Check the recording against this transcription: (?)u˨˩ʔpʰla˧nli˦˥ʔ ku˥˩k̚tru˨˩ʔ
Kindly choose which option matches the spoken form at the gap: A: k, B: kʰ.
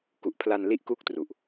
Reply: A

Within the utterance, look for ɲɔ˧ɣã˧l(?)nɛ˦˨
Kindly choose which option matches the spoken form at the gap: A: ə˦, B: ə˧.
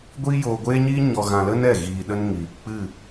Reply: A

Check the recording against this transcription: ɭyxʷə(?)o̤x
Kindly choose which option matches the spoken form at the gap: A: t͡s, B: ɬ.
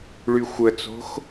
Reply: A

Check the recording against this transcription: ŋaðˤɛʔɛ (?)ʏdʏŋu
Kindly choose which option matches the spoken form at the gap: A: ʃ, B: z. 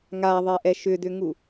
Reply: A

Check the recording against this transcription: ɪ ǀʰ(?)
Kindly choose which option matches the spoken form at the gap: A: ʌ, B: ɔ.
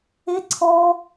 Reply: B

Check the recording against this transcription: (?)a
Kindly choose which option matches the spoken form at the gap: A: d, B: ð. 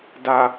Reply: A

